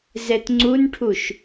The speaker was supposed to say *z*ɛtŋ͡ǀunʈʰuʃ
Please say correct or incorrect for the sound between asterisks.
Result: correct